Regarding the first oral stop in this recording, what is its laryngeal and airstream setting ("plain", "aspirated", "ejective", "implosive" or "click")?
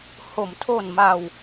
aspirated